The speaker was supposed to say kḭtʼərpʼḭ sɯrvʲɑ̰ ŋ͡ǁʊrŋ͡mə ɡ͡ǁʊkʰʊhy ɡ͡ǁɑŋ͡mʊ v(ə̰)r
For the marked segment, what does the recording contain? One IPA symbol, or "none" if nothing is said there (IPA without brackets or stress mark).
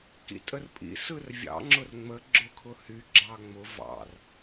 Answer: ɑ̰